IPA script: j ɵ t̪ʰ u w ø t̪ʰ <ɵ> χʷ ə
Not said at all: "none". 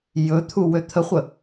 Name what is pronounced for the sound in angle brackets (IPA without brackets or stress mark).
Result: ə